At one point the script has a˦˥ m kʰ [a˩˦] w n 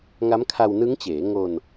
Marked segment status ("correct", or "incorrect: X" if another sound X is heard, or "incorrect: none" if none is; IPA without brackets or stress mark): incorrect: a˧